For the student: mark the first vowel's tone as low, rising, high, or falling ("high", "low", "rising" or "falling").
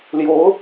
rising